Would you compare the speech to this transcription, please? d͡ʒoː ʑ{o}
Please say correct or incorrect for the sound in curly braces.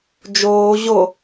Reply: correct